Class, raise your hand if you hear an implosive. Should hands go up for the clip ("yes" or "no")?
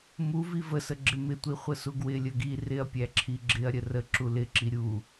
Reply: no